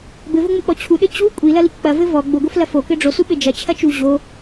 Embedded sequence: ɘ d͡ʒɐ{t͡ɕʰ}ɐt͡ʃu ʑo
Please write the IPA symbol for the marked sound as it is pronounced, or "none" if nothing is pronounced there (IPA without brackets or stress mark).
t͡ɕʰ